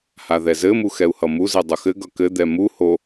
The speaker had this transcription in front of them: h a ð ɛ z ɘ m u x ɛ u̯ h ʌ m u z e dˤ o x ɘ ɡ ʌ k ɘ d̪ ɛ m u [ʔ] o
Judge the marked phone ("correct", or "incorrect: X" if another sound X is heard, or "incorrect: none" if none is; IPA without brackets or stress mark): incorrect: h